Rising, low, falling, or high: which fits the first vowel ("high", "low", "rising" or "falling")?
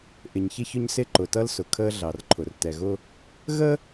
low